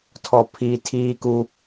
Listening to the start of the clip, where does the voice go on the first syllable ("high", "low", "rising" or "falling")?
low